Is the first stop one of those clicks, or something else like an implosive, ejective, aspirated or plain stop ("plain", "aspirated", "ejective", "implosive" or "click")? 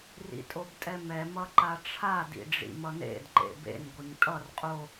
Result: ejective